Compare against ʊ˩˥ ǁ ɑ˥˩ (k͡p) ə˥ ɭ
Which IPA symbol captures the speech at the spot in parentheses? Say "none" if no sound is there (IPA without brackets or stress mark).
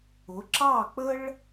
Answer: k͡p